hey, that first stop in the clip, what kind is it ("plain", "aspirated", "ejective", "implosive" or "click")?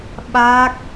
implosive